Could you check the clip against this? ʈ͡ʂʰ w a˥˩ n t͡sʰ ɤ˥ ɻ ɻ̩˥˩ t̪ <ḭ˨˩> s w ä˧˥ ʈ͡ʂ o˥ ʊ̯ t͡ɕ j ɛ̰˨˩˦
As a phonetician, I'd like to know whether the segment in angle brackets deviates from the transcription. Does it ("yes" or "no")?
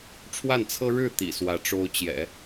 no